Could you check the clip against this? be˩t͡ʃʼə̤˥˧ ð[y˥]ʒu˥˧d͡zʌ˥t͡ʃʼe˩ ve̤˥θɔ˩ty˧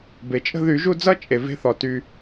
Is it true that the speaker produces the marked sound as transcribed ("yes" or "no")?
no